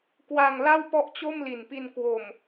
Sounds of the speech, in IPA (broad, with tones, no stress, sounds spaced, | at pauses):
k w a˧ ŋ l a˥˩ w p ɔ˥˩ ʔ t͡ɕ o˥˩ m l i˨˩ n p i˧ n k w o˨˩ m